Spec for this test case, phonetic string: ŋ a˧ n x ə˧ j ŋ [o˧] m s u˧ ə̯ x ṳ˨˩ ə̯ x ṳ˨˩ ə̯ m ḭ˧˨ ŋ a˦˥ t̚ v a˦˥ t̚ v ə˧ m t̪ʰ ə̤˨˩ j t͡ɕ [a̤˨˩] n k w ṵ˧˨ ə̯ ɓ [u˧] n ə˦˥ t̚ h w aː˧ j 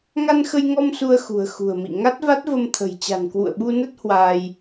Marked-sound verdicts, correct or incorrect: incorrect, correct, correct

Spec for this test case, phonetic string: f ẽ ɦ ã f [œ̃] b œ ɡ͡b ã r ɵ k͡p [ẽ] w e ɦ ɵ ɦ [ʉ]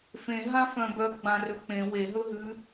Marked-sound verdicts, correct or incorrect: correct, correct, correct

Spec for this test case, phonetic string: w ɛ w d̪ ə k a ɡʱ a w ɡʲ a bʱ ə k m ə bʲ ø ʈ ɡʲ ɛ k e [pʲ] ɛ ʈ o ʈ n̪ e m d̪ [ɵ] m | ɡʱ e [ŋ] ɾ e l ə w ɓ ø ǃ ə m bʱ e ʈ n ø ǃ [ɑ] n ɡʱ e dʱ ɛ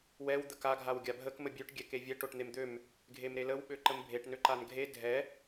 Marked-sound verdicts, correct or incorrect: incorrect, incorrect, incorrect, incorrect

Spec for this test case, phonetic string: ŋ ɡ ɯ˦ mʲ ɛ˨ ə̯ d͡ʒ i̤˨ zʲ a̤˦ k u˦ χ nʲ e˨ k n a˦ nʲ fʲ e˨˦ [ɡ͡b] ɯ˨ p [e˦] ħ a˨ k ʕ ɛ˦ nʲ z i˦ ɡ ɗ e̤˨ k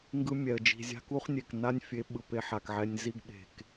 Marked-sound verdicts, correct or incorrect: incorrect, correct

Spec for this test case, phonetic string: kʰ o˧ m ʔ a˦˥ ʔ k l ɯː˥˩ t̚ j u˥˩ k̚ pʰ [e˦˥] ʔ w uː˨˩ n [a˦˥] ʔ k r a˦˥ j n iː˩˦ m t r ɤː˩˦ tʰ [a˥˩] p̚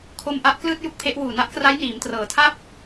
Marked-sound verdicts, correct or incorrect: correct, correct, correct

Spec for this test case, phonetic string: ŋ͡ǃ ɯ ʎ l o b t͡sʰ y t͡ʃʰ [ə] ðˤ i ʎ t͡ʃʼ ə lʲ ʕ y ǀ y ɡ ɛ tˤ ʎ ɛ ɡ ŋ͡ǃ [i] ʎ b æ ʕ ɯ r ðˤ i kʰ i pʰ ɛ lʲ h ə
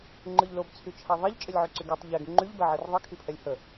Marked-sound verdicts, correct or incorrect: incorrect, incorrect

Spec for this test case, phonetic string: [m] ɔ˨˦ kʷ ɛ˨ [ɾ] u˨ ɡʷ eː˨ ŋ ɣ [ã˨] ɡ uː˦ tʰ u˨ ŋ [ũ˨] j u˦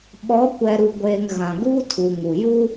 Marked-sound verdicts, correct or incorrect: incorrect, correct, correct, incorrect

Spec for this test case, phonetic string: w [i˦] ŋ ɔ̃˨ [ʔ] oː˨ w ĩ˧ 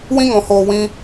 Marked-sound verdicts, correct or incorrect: incorrect, incorrect

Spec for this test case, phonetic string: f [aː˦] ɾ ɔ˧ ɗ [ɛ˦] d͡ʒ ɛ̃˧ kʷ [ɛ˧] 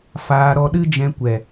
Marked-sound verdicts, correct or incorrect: incorrect, incorrect, incorrect

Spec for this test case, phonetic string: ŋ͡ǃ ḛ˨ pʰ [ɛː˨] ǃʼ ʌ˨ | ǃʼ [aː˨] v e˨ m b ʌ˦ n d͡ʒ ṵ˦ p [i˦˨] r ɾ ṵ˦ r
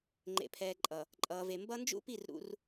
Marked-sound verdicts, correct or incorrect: correct, incorrect, correct

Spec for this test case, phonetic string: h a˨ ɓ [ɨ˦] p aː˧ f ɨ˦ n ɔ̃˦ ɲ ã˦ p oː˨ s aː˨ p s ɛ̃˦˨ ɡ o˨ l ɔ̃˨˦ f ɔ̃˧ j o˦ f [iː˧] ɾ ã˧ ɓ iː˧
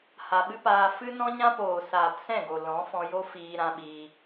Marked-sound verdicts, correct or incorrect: correct, correct

